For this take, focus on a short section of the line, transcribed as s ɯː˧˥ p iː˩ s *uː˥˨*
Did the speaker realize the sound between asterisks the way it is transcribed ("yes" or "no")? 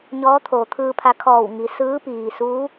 no